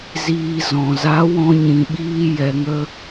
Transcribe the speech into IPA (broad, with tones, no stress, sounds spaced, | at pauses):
z iː˨ z ɔ̃˨ z a˨˦ w ɔ̃˧ ɲ ĩ˨ ɓ iː˧ j ɛ˨ ŋ ə˧